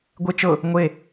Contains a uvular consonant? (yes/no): no